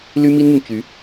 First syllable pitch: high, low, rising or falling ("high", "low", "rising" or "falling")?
high